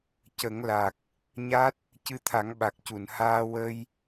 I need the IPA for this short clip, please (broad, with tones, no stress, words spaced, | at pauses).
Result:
cə˨˩˦ŋla˨˩k̚ | ɲa˦˥t̚ | cɨ˧t̪ʰa˨˩˦ŋɓa˨˩k̚ cu˨˩˨n haː˧wə˧j